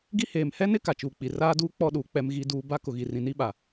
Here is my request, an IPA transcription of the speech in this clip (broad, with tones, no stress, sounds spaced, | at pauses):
ɡ i˦ h eː˨ m h ɛ˦ n ɪ˦ k a˨ t͡ʃ uː˨ k͡p i˨ r aː˦ d uː˦ k͡p ɔ˦˨ ɗ uː˨ k͡p ɛ˦ m ɣ i˦ d uː˦ b a˦ k ʊ˨ ɣ i˨ r ĩ˨ n i˦ ɓ a˨